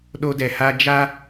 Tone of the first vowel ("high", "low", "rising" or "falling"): high